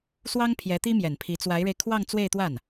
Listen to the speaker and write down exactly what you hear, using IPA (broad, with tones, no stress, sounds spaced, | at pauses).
s w ɑ˥ ŋ pʰ j ɛ˧˥ t̪ i˥ m j ɛ˨˩ n pʰ i˧˥ t͡s w a˧˥ ɪ̯ ɻ e˧ ɪ̯ kʰ w ɑ˥˧ ŋ t͡s w e˥˧ ɪ̯ t̪ w a˥˩ n